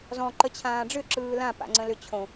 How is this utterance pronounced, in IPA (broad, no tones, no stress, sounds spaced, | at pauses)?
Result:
z ɔ̃ ǃ ə t͡ɕʰ ãː ɖ͡ʐ ʏ ǁ ɯː l ã p a̰ ŋ͡ǀ ə̃ l ʏ t͡ɕʰ õ